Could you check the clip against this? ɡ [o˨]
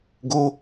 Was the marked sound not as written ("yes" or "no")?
yes